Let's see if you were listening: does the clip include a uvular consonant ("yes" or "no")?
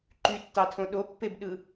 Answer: no